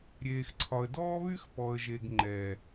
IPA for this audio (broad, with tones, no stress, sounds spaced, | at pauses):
ɾʲ eː˨ x ǀʰ ɒ˨ ə̯ d ɔː˦ β y˦ x p ɔ˨ ə̯ ʒ e˨ ɡ ŋ͡ǃ ɛ˨